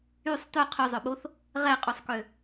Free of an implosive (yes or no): no